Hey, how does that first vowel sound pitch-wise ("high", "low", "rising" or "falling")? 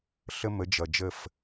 high